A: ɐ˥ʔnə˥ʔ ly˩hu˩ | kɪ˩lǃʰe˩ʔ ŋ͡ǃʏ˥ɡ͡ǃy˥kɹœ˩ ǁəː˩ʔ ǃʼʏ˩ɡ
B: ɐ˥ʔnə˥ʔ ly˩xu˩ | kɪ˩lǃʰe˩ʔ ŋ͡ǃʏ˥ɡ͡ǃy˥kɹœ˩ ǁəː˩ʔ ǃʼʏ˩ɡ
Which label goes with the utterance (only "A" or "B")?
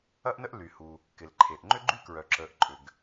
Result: A